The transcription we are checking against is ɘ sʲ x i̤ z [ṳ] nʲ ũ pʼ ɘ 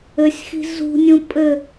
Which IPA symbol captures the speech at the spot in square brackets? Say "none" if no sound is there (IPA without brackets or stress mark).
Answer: ṳ